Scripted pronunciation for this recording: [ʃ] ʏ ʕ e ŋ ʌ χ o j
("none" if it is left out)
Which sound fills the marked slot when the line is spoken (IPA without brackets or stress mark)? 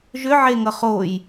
ʒ